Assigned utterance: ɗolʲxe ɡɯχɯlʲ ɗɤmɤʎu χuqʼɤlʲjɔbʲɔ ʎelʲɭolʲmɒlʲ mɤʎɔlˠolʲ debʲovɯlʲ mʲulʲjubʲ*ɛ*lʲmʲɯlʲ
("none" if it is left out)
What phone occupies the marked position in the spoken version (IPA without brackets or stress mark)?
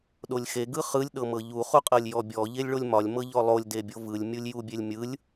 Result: e